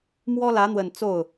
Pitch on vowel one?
high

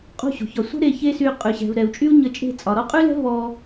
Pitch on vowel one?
falling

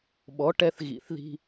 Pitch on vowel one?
rising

